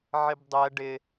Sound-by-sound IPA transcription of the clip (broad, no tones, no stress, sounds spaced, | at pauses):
ʕ ɪ b dˤ ɛ ɖ ɪ